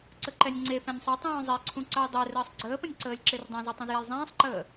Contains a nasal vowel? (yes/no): yes